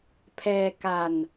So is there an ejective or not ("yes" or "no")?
no